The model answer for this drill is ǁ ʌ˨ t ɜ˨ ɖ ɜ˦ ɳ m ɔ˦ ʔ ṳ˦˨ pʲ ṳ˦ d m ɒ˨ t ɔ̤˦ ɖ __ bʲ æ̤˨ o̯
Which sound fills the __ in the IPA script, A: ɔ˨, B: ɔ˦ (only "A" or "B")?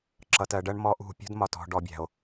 A